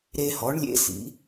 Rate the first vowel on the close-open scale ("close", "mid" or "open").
mid